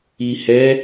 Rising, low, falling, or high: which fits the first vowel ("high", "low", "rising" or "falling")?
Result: low